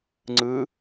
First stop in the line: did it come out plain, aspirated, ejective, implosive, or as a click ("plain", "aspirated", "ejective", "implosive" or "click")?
click